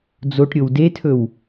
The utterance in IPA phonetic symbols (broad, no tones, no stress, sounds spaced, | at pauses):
d͡z o ʈ ɾʲ o w d e tʰ ɵ w